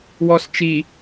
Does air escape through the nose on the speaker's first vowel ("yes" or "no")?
no